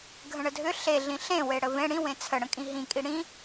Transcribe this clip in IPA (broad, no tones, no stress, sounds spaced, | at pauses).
ɡʱ ə̃ ɳ ə dʱ ʏ ɬ e ɮ ĩ ɬ ẽ w e ɽ ə v ẽ ɽ ĩ w ẽ t͡sʰ ə ɽ ə̃ kʼ ĩ ɦ ĩ kʼ i ɽ ĩ